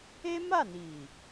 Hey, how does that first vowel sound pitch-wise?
high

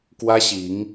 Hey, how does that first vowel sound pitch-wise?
high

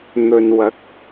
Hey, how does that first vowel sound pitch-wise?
low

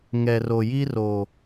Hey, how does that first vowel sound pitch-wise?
low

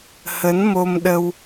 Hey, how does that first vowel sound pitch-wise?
rising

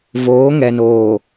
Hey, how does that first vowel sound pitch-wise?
rising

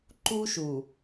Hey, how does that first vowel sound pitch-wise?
high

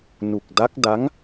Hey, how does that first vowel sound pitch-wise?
low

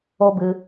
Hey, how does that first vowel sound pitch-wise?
high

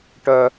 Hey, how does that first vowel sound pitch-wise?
high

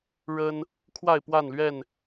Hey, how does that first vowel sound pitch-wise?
high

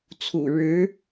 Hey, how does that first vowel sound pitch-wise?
low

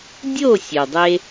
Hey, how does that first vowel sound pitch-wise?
falling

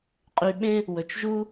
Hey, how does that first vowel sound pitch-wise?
low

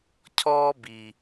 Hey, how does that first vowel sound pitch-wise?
high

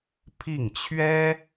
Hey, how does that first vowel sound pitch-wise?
falling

